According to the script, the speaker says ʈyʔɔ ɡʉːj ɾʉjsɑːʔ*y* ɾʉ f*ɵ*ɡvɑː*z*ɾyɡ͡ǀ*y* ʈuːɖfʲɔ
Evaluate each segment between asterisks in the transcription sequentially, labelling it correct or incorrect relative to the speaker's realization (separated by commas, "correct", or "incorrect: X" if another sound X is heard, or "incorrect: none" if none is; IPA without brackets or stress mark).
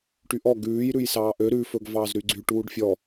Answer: incorrect: ø, correct, correct, correct